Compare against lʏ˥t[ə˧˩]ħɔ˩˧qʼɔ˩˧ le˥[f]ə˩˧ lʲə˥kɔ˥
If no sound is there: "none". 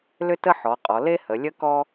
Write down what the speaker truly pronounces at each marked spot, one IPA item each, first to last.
ə˥, h

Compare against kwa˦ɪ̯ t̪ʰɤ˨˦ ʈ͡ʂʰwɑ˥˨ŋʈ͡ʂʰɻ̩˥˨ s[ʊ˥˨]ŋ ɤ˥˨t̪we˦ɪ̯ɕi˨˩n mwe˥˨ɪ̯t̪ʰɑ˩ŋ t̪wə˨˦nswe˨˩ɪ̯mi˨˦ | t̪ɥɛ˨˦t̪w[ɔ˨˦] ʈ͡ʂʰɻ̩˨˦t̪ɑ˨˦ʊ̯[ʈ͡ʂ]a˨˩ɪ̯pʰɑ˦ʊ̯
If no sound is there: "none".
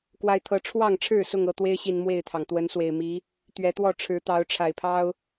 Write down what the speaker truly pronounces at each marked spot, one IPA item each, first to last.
ʊ˥˨, ɔ˥˨, ʈ͡ʂʰ

